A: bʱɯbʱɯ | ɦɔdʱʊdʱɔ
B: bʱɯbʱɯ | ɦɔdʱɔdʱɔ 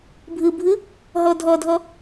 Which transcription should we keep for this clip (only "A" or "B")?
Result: B